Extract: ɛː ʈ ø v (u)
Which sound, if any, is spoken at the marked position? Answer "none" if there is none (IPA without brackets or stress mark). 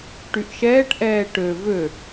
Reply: ø